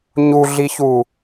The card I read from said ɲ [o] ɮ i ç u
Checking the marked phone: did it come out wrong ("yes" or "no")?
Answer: yes